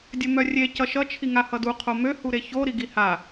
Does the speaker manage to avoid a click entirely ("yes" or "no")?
yes